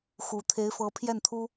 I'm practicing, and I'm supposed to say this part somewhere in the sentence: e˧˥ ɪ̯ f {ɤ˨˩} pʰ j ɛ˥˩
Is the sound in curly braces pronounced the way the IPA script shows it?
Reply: no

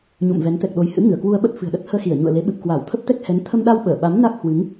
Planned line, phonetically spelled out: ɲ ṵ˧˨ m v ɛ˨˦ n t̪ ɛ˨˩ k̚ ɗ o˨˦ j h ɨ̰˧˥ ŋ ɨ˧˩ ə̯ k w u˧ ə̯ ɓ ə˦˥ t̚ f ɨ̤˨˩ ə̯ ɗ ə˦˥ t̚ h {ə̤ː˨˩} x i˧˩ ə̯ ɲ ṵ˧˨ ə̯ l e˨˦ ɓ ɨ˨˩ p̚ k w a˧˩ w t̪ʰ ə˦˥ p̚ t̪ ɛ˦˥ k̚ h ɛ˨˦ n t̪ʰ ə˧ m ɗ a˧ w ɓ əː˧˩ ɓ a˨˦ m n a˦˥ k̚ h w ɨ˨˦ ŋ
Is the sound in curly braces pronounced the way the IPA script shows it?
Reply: no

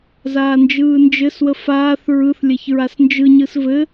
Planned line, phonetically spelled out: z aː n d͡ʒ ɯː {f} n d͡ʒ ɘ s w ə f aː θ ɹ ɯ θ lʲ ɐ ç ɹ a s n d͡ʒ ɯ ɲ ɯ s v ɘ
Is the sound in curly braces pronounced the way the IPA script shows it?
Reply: no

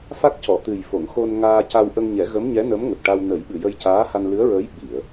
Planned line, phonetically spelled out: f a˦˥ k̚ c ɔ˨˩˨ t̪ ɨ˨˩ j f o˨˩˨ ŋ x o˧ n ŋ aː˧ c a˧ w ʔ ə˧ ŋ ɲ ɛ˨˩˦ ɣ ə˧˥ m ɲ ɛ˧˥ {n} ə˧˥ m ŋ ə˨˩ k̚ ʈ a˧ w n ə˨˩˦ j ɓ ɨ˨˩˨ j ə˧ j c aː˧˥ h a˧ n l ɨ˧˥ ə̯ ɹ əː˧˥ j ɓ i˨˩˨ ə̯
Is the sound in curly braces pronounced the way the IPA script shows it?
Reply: yes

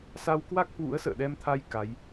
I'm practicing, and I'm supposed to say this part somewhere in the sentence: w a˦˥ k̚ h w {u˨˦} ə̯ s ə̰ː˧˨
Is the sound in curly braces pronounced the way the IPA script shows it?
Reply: no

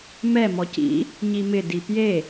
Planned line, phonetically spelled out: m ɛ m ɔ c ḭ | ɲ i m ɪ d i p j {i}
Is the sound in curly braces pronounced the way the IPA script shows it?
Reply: no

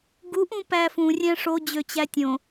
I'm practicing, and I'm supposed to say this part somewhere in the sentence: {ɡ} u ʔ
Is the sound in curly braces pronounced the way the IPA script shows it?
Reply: yes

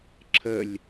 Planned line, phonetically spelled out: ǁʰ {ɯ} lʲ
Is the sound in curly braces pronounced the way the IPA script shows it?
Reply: no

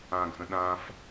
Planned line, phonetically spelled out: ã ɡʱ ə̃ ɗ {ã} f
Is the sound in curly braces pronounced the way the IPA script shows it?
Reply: yes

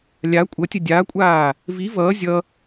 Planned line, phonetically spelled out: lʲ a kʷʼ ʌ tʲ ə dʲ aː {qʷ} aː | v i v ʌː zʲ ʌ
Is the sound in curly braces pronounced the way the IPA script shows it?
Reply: no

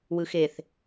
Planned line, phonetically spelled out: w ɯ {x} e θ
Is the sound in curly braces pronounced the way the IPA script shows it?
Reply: yes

